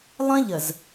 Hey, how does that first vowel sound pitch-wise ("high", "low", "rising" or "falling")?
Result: high